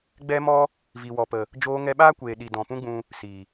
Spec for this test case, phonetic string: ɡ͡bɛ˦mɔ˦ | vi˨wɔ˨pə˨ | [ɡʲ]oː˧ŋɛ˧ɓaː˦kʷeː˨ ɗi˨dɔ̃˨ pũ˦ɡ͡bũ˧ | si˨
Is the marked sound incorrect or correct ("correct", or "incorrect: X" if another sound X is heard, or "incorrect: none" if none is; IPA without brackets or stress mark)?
incorrect: d͡ʒ